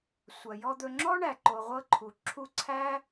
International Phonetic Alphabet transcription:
sʷɐ˨jɔ˧d̪ɵ˧ ŋ͡ǁɔ˦ɳæ˨ǃo˨ ʁʷɤ˧ǃʰu˨ ǁʰu˦ ǀʰæ˦

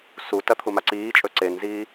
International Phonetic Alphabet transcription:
sutɐ t̪ʰumaǀiːt͡ʃʼɵ ǀenziː

